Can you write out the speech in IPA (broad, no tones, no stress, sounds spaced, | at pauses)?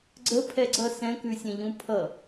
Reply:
ɡ͡ǀ ə pʰ ɛ ɡ͡ǀ ʌ s ɛ̃ k ʉ sʲ ẽ ʎ ũ pʰ ʌ